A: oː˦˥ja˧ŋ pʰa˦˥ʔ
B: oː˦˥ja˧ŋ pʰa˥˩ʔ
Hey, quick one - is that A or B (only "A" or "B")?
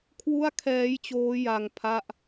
B